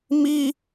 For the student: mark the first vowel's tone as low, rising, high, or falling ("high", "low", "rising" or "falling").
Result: high